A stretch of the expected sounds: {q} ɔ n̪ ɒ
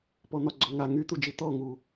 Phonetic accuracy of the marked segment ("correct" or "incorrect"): incorrect